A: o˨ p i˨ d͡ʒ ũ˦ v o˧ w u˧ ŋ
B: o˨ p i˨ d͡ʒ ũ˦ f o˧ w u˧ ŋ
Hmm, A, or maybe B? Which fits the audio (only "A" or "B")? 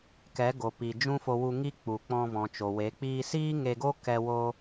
B